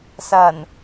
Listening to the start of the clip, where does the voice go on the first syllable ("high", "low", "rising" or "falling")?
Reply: low